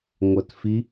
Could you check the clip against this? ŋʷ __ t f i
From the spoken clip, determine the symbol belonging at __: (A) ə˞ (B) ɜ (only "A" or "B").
B